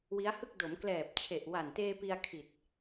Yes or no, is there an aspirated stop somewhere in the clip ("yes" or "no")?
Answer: yes